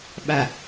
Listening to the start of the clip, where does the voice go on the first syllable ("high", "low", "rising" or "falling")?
low